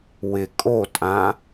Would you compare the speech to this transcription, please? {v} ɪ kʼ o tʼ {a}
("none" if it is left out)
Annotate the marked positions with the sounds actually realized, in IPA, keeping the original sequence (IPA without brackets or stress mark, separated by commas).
w, ã